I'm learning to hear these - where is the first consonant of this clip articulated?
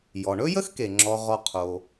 palate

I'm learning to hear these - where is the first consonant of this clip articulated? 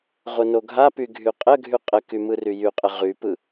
uvula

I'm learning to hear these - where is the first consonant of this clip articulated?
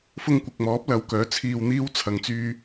lips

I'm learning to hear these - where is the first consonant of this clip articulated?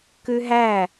velum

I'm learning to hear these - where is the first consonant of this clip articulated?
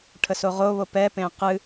retroflex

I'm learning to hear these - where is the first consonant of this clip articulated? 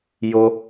palate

